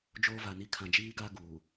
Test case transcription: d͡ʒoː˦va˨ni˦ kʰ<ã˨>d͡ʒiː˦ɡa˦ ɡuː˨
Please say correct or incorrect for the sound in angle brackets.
correct